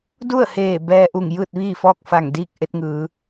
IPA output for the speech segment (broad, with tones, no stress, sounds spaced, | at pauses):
d u˥˨ ə̯ h eː˧˩ b ɛː˧ ʔ u˧˩ ŋ j ɯː˥˨ t̚ ʋ iː˥˨ f ɔː˥˨ k̚ f a˧˩ ŋ d iː˥˨ k̚ ʔ e˧ t̚ ŋ ɯː˩˧